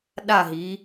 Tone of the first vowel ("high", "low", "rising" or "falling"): falling